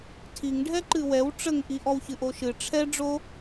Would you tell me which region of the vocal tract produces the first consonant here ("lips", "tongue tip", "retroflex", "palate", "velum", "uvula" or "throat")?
tongue tip